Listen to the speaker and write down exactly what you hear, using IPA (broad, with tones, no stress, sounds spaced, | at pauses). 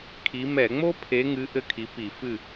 kʰ i˨˦ m ɛ˧˩˧ ŋ͡m o˥ pʰ e˨˦ ŋ ɨ˨˦ ʔ ɘ˦˨ kʰ i˨˦ p i˧˩˧ f ɨ˦˨